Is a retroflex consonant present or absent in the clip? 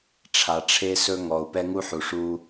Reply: present